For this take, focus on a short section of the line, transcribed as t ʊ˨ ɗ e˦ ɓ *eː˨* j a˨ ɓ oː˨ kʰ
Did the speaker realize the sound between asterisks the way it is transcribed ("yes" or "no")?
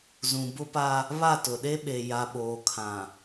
no